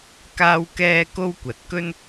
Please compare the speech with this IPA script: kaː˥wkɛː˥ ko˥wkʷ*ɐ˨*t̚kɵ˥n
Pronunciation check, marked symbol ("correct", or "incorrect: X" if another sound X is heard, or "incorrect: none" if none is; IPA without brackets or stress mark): incorrect: ɐ˨˥